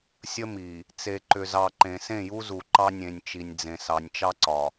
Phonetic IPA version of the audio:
sʲ ə˦ m i˨ | t͡s e˨ ǃ ʏ˨ z ɑ˨ ǃ ẽ˨ s ẽ˦˨ j u˦ z u˨ ǃ ɑ˦ nʲ ẽ˨ nʲ t͡ʃ i˨ nʲ d͡z ẽ˨ s ɑ˨ nʲ t͡ʃ ɑ˦ ǀ ɒ˨

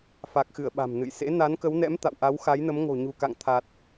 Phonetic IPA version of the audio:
f a˨˩ k̚ x ɨ˧˩ ə̯ ɓ a̤˨˩ m n ɨ̰˧˨ j s ḛ˧˥ n a˨˦ n k ə˨˦ w n ɛ̰˧˥ m t̪ a̰˧˨ w ʔ a˨˦ w x a˨˦ j n ə˨˦ m ŋ o̤˨˩ ɲ ṳ˨˩ k a̰˧˨ ŋ t̪ʰ a˨˩ t̚

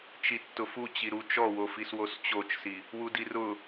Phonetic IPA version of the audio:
t͡ʃ i tː ʊ f u t͡ɕ i ɾ u t͡ʃ ɔ w o f i s w o s t͡ɕ o t͡ʃ s i | w u d i r ʊ

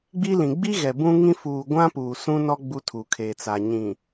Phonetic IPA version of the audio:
ɡ͡b i˦ l ĩ˨ ɡ͡b i˦ ɣ ɛ˨ b ũ˦ ŋ ĩ˦ f uː˨ ɡʷ ã˦ p uː˨ s ũ˦ n ɔ˦ ɡ͡b u˦ tʰ u˨ kʰ e˨ t͡s a˨ ɲ ĩ˨

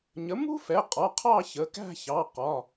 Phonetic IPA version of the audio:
ɲ ə˩˥ m ṳ˥ f ɛ˩˧˩ qʼ ɒ˩˧˩ qʰ ɑ˥˧ ç ə˩˧˩ k æ̤˥˧ ç ɑ˩˧˩ q ɒ˩˧˩

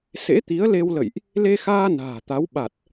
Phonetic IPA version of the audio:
s ḛ˧˥ t̪ i˨˦ ə̯ l e˧ w l ə̰˧˨ j ʔ | l e˧ x aː˧ n a̤ː˨˩ t̪ a˨˦ w ɓ a˨˩ t̚

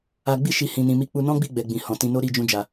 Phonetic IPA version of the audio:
a˧ ɡ͡b i˦ ʃ i˦˨ h ĩ˧ n ĩ˧ m i˦ k͡p u˧ n ɔ̃˦ ɡ͡b i˦˨ ɡ͡b ɛ˨ ɡ͡b ĩ˨ h ɔ̃˨ t ĩ˧ n o˦ ɾ i˦˨ d͡ʒ ũ˧ d͡ʒ a˨

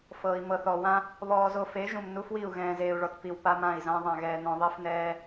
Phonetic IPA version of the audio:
f ɤː˨ i̯ m ɤ˨ θ ɔ˨ w ã˦ | β ɔː˨ z o˨ f e˨˦ ʒ ũ˨ m n u˦ f w i˦˨ u̯ ɣ ɛ̃ː˨ z eː˨ u̯ ɭ ɔ˨ t p i˨ w p a˦ m ã˦˨ i̯ z ã˦ ðˤ ã˨ ɣ ɛː˨ n ɔ̃˨ ðˤ i˨ f n ɛː˨

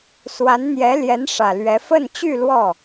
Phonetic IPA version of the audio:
s w a˧˥ n n̪ j ɛ˧˥ l j ɛ˧˥ n ʂ ä˨˩ l ɥ ɛ˧˥ f ə˥˧ n t͡ɕ y˥˧ l w ɔ˥˩

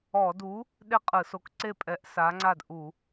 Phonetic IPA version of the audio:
ɔ˧˩˧ d u˨˥ | ɗ e˥˩ qʼ ɯ˧˩˧ s o˨˥ k ǀ e˥˩ pʼ ɛ˨˥ ʔ s a˨˥ ŋ͡ǀ a˥˩ d ʔ u˧˩˧

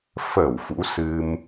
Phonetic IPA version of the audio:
f ə˧˩ w f ṵ˧˥ s ɨ˧ m

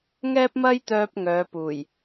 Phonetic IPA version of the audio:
ŋ ɛː˥ p̚ m ɐ˥ j t̪ œː˥ p̚ ŋ œː˨˧ p uː˨˩ j

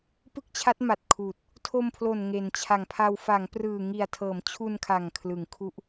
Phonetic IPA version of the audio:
p ɯ˥˩ k̚ t͡ɕʰ a˦˥ t̚ m a˨˩ t̚ kʰ uː˨˩ t̚ | tʰ o˧ m pʰ l o˨˩ n ŋ e˩˦ n t͡ɕʰ a˨˩ ŋ pʰ a˧ w f a˩˦ ŋ p r ɯː˨˩ ŋ i˨˩ a̯ tʰ ɤː˩˦ m t͡ɕʰ u˧ n kʰ a˨˩ ŋ kʰ l ɯ˩˦ ŋ kʰ u˦˥ ʔ

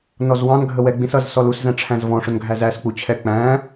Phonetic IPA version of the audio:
n ɔ z w ɑ̃ n ɡʱ ə w ɛ ɡ͡b ĩ s ʌ z s ɔ l u s z æ̃ ʈ͡ʂʰ æ̃ z v ɔ̃ ʂ ʊ n ɡʱ æ z æ s k͡p u t͡ɕʰ ɛ k͡p æ̃

